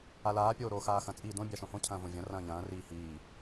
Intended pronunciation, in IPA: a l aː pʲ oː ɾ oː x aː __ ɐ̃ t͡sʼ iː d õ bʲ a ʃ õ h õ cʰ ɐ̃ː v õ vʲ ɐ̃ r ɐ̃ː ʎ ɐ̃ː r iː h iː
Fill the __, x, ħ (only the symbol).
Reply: x